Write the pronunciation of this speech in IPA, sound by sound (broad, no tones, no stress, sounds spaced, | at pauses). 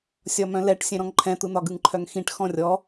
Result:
sʲ ɒ m œ̃ l ɛ ʈ sʲ ɛ̃ ɾ ɔ̃ ŋ ǃʰ ɛ̃ t̪ ɯ n̪ ɒ ɡ ɯ ŋ ǃʰ œ ŋ x ĩ ʈ x ɔ̃ rʲ ɔ